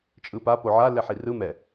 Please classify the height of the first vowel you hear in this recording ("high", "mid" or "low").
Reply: high